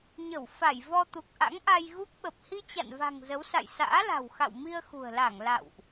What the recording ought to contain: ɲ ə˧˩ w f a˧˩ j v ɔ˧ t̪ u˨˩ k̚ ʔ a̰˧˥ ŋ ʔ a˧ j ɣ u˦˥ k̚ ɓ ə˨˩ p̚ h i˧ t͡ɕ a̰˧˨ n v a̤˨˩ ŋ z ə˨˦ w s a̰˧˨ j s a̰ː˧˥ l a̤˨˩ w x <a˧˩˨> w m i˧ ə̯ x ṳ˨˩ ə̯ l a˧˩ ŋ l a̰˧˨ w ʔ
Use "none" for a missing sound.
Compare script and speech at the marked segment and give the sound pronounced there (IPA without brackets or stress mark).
a̰˧˨